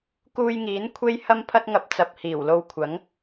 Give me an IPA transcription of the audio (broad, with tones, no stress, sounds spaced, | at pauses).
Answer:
k uː˧ j ŋ iː˨˥ n kʷʰ e˥ j h ɐ˥ m pʰ ɐ˥ t̚ ŋ ɐ˧ p̚ t͡s ɐ˨ p̚ h iː˨˩ w l o˧ w kʷʰ ɐ˨˥ ŋ